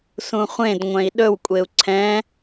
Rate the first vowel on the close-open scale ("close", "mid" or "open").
close